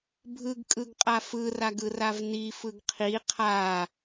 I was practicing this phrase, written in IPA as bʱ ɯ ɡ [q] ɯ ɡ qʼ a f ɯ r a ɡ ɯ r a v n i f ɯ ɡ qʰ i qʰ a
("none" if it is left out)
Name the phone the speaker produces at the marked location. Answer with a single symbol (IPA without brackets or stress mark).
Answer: kʼ